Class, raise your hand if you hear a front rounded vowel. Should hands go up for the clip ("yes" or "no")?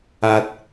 no